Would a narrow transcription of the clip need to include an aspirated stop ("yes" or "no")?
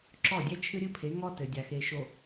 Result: yes